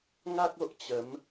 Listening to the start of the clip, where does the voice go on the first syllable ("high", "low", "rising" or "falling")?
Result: high